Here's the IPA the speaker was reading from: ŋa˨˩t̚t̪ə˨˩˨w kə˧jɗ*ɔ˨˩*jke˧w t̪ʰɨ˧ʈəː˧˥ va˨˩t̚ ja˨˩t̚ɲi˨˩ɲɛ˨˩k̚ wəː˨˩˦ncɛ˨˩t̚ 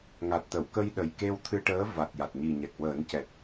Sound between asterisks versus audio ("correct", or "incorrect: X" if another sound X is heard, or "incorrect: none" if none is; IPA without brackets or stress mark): incorrect: ə˨˩